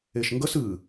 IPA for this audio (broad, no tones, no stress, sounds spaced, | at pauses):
e ʃ ŋ ɡ ə s ɨ